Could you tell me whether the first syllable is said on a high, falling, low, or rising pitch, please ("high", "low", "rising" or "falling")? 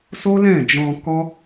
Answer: high